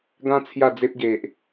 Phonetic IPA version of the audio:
ɡ ã˦ t͡sʰ j a˥˧ d͡z e˦ p̚ ɡ e˨ ʔ

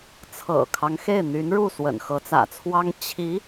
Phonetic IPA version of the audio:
t͡sʰ ɤ̰˨˩ kʰ ɑ˦ ŋ x e˥˩ ɪ̯ n̪ y˧˥ n ɻ u˥˩ s w ə̰˨˩ n x ɤ˧˥ t͡s ä̰˨˩ t͡sʰ w ɑ˥ ŋ t͡ɕʰ i˧˥

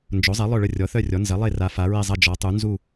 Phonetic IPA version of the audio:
n d͡ʒ o˩˥ zˤ e˩˥ lˠ œ˥˨ ɭ ə˥˨ rʲ ɔ˩˥ θ œ˥˨ rʲ ɔ˩˥ n z ɐ˩˥ lˠ e˥˨ r a˩˥ f a˩˥ ɹ e˥˨ zˤ ɐ˥˨ d͡ʒ ɔ˩˥ tˤ u˩˥ n z u˥˨

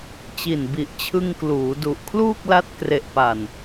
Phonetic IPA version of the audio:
t͡ɕ i˨˩ n b i˨˩ ʔ t͡ɕʰ ɯ˧ ŋ k l uː˩˦ d u˨˩ ʔ kʰ l uː˥˩ k̚ l a˦˥ t̚ k r e˨˩ ʔ p a˨˩ n

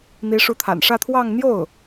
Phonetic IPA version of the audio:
n̪ i˧˥ ʂ u˧˥ t̪ʰ a̰˨˩ n ʂ ä˥˧ t̪ʰ w ɑ˥˧ ŋ n̪ j o˥˩ ʊ̯

